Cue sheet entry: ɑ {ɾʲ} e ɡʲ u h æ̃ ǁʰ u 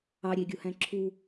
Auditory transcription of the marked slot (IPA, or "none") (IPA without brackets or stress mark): ɾʲ